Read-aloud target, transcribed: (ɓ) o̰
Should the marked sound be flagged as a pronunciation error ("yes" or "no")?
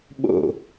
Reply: no